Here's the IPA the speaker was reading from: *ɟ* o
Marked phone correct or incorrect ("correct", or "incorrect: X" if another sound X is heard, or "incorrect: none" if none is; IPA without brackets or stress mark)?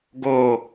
incorrect: ɡ